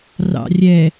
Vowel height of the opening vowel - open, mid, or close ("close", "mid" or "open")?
open